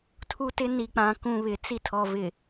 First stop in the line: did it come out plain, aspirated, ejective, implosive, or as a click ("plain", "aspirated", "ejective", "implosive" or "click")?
aspirated